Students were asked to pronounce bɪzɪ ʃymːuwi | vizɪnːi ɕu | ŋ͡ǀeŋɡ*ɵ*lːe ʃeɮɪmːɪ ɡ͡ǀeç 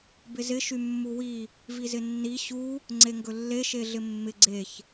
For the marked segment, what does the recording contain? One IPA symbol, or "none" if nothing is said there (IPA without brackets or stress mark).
ɵ